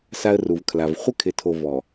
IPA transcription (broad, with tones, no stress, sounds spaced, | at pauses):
s a˦ ə̯ r u˨ v kʰ l a˨ v χʷ ɪ˦ kʰ ɪ˨ tʰ o˨ v ɔ˨